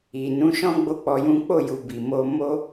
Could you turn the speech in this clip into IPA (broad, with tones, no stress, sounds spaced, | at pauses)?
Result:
i˨ n ũ˨˦ ʃ ɔ̃˦ ɡ͡b o˦ k͡p ɔ˧ j ũ˦ k͡p o˦˨ j u˧ b i˨ m o˧ m o˦